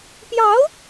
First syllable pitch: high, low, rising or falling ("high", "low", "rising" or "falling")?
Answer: rising